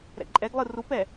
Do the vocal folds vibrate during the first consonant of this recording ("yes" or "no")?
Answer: yes